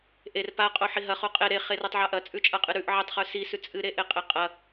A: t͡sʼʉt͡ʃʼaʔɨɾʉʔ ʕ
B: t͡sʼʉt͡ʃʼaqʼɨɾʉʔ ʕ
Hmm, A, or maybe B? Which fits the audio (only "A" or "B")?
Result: B